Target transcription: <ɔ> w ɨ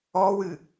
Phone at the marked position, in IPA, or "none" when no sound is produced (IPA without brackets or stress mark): ɔ